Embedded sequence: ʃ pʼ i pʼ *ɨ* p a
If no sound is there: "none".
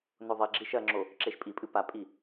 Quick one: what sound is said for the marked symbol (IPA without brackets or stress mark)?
ɨ